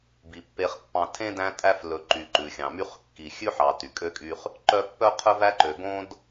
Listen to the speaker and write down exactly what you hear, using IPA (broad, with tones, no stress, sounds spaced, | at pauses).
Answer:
b i˩ pː e˨ χ pː ɑ̃˨ tʰ ẽ˥ d æ̃˦ tʼ æ˦ f l ɵ˨ ǃ y˩ ǃ ʉ˩ xʲ ɑ̃˩ m y˦ χ kː i˨ xʲ ʉ˥ ħ ɑ˨ t y˩ kʼ ø˥ kʼ y˦ χ | ǃ œ˦ pː œ˥ qʰ œ˥ v æ˥ ǃ ø˨ ɡ õ˥ d